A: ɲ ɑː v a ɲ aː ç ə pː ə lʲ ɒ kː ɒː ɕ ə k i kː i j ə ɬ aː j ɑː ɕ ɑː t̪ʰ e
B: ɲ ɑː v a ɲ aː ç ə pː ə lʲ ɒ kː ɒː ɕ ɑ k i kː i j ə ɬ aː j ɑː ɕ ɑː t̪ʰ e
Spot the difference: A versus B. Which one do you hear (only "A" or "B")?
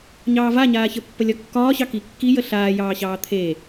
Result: B